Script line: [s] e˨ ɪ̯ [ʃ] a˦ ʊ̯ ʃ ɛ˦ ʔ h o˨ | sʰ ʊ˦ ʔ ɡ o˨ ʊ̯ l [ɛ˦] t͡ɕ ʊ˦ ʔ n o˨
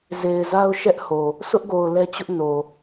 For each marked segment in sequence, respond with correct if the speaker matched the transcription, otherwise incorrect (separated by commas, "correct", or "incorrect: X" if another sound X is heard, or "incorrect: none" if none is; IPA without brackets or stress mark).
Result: incorrect: z, incorrect: z, correct